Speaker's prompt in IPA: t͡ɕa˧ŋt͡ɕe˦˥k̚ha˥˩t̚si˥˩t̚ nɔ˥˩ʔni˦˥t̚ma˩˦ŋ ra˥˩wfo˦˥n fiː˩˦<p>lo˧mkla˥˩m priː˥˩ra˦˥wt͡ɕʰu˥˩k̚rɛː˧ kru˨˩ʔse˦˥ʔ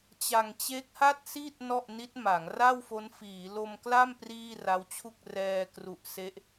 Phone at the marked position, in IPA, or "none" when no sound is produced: none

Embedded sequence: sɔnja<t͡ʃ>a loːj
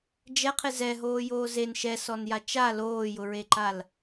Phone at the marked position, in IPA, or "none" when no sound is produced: t͡ʃ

